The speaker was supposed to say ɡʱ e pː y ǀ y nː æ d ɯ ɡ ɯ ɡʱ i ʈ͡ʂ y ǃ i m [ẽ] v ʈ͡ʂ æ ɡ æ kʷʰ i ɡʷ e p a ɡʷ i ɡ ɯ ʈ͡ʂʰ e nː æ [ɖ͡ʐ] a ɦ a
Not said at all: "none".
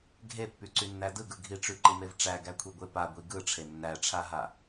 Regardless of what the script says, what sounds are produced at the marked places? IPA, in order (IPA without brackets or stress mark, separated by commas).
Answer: e, ʈ͡ʂʰ